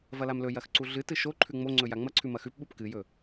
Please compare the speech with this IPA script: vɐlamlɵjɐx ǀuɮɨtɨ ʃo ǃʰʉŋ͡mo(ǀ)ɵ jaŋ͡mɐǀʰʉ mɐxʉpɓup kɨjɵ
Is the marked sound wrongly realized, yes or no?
yes